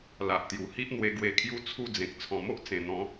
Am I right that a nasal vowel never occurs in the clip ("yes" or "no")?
no